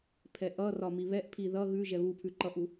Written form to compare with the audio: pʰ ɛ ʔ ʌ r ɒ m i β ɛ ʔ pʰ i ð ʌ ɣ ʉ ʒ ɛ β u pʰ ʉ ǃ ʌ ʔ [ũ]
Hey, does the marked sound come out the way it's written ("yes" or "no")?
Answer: no